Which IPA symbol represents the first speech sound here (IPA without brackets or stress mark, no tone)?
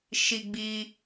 ʃ